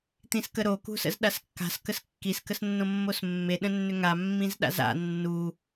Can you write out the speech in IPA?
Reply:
t̪ĩskəɾo kṳsə̰zɗaskːa̤s kəskːis kəsnːõmːosmːe ɗə̃nːʏŋa mːĩzɗa̰za̰ nːu

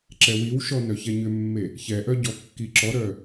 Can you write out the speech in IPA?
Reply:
ǁɛwiwʃɔ nœçɛɲʏmːe | çɛʔœ ɟɔkːiǁɔɾœ

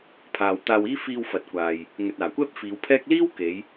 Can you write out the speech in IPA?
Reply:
pʰaː˨wt̪aː˧wiː˥ fiː˧wfɐ˨t̚kʷaː˨j | ŋɵ˨t̚aː˨˩kʷɛː˥p̚ fiː˨˧wpʰɛː˥k̚ liː˥wke˨˧j

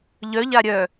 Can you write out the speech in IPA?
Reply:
ʎœʎa ɾʲœ

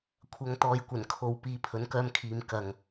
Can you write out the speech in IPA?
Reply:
kʷʰɐ˨˧ŋt̪ɔː˨˧jkʷɐ˨˩n kʰo˨w piː˨˧pʰɵ˨˥nkœː˧mkʰiː˨˧m kɐ˨ŋ

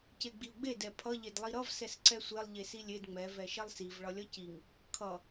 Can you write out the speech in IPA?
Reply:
ceɡ͡biu̯ɡ͡be dɛpʰʌ ʎedlˠiɾʌv sɛsǀɛsʷelˠ ʎesilʲed ŋ͡mɛ vɛʃɛlˠsiv ɭʌlʲʌciŋ | kʰʌ

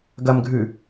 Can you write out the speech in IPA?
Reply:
ɡɐmɡʱʉ

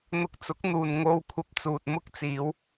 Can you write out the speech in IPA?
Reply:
n̪ʊ˧k̚t͡sʊ˨˥k̚n̪uː˨n ŋo˧w kʷʰɐ˧p̚t͡suː˨t̚mʊ˥k̚ t͡siː˨˧w

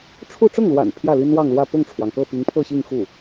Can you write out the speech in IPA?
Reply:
ʈ͡ʂʰu˥˧ ʈ͡ʂʊ˥˩ŋlwa̰˨˩n pʰjä˥˩li˥nwɑ˥˧ŋlwä˥˧ pʊ˥˩ŋʈ͡ʂʰwɑ˩ŋkɤ˥˩ pi˧˥ŋpʰɤ˥˧ɕi˥˧ŋ xu˥˩

